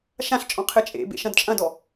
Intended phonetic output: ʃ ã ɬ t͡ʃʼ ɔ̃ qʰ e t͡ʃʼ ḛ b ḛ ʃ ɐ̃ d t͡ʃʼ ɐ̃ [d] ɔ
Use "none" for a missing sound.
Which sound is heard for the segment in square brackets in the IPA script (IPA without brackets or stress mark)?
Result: d